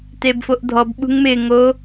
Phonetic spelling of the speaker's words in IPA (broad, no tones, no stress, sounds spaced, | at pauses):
t e b f o ʔ dʱ ɔ b ɓ ṳ ŋ m ɪ ŋ o